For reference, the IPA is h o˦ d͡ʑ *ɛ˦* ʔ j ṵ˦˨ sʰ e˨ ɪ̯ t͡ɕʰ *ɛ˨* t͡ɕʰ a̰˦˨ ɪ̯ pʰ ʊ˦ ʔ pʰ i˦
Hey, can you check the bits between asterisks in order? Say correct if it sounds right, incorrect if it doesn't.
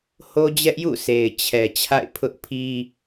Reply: correct, correct

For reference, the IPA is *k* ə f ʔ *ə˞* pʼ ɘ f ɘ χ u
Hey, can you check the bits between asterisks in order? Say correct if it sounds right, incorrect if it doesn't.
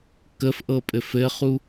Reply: correct, incorrect: ɤ

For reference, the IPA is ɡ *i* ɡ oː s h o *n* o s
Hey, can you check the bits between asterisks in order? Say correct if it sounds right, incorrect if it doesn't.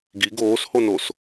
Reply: correct, correct

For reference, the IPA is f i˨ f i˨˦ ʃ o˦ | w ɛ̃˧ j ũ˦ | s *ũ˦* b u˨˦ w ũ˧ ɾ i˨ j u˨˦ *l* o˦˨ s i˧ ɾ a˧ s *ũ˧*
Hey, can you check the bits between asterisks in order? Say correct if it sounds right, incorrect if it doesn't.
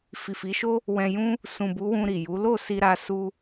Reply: incorrect: ũ˨, correct, incorrect: u˧

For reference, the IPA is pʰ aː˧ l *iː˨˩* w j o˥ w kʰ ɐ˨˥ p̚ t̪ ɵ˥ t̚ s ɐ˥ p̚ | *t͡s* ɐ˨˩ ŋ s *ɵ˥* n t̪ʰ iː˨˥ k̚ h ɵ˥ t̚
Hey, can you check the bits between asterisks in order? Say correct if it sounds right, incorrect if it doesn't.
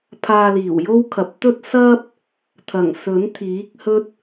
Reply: correct, incorrect: t̪ʰ, incorrect: ɵ˨˥

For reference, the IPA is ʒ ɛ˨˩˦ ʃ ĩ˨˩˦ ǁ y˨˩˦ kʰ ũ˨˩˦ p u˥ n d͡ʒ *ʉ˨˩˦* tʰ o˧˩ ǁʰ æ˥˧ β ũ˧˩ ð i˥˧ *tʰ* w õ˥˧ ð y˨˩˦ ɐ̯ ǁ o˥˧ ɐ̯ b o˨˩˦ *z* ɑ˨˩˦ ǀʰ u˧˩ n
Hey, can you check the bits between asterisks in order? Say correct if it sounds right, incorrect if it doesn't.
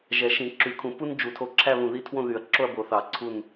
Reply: incorrect: u˨˩˦, correct, incorrect: θ

